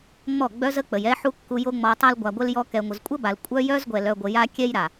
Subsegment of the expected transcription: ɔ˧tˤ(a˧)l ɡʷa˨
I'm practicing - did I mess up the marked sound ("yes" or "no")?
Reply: yes